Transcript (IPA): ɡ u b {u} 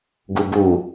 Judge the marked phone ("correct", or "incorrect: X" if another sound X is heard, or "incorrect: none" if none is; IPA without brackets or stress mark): correct